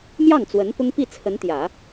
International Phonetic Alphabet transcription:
m j ɑ˥˩ ŋ t͡s w ə˧˥ n p ʊ˥ ŋ p i˥˩ t͡sʰ ə˧˥ n t̪ j ä˨˩˦

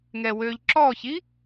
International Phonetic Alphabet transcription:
ŋ ɛ w ø ʎ ǁ ɔ ç i

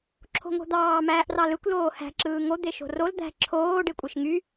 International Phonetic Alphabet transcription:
ǁʰ o̤ ŋ o̤ d̪ ɑː m æː ʔ r ɑ l ɯ kʷ l oː h æ̤ ǁ ɯː ŋ o d̪ e ʃ o̤ r o l d̪ æ̤ ǁʰ oː ɖ e kʷʼ e ʃ ŋ y

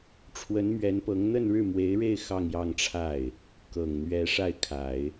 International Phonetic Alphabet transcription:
ʈ͡ʂʰ w ə˧˥ n m ɥ ɛ˧˥ n p ɤ˧˥ ŋ n̪ ə˥˧ n ɻ ɻ̩˥˩ m w e˧˥ ɪ̯ ɻ e˥˧ ɪ̯ x ɑ˥˧ ŋ j ɑ˥˧ ŋ ʈ͡ʂʰ a˥˩ ɪ̯ | k ɤ˨˩ ŋ n̪ ɥ ɛ˧˥ ʂ a˥˩ ɪ̯ kʰ a˨˩˦ ɪ̯

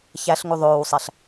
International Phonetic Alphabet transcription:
ç æ ɬ ŋ u ðˤ oː w sˤ æ ɬ

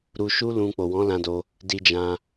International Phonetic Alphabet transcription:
ɾ u˧ ʃ u˦ l ũ˧ k͡p o˨ w ɔ̃˨˦ l ã˧ d o˧ | d i˧ d͡ʒ ã˧

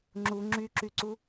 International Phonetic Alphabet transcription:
ŋ͡ǁ u ŋ͡ǁ y ǁ y ǀ u

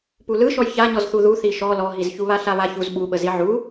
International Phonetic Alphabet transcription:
p u l ɯ ʃ ɔ j ç a ɲ ɔ z θ u ð u θ i ʃ ɔ l ɔ ɦ i z ç u β a ɬ a β a ç u z ɓ u ɓ ə z i ʕ u

